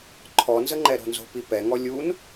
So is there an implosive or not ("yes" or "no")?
no